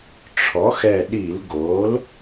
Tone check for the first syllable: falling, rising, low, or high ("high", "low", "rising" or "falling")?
rising